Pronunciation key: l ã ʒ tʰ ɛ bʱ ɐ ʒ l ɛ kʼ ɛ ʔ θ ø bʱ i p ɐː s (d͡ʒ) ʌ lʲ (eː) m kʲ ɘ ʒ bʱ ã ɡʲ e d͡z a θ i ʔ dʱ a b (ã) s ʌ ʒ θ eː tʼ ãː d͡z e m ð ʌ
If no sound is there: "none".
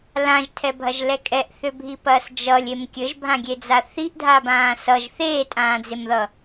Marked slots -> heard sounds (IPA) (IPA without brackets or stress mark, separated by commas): d͡ʒ, e, ãː